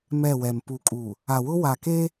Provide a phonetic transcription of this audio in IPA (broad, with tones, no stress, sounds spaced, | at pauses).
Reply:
m ɛ˦˨ w ɛ˨ m p u˨ kʼ u˨ | a˨ w ʊ˦ w a˨ k e˦